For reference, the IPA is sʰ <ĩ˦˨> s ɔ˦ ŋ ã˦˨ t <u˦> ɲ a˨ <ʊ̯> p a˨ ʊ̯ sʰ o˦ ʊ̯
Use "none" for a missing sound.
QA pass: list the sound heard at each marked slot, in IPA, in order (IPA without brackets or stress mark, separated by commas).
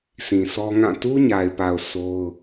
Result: ĩ˨, u˦, ɪ̯